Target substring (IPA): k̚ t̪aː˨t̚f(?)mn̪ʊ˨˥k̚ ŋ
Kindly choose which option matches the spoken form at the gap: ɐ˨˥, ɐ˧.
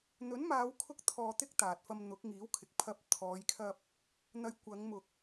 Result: ɐ˧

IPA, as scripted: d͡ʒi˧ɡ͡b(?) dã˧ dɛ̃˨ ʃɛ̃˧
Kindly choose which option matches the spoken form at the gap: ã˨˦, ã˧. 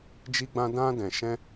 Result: ã˧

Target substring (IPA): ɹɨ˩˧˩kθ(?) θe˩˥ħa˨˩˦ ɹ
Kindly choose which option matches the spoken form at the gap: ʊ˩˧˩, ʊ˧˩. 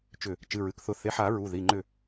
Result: ʊ˧˩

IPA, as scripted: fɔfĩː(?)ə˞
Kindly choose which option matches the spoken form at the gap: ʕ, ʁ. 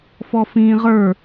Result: ʁ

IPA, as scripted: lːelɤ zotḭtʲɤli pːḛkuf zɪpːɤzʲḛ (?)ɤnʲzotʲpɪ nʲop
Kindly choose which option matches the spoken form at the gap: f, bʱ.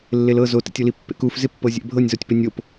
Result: bʱ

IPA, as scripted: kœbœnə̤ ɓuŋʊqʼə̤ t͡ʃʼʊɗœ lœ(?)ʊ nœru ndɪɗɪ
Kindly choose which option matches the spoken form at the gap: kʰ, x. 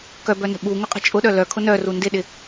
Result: kʰ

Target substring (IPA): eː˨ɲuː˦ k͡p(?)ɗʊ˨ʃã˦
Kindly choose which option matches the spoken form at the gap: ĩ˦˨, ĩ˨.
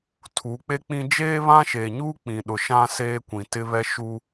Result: ĩ˨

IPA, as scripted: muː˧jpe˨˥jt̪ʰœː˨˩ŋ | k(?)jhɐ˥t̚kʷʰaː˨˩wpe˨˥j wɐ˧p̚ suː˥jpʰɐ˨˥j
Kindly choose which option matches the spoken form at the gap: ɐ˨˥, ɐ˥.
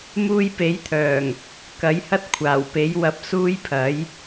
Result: ɐ˨˥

